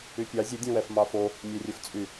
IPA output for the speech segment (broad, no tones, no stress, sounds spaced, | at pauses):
y pʲ ɑ zʲ ɛ dʲ œ̃ w ɛ f m ɑ f o | mʲ ɛ rʲ ɵ f t͡sʼ y